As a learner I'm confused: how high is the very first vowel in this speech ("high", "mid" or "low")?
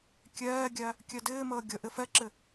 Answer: mid